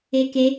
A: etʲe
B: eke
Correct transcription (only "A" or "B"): B